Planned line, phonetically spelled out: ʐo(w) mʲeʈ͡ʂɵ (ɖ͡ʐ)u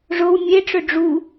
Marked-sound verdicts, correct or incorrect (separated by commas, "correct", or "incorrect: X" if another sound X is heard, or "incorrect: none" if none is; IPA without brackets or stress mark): correct, correct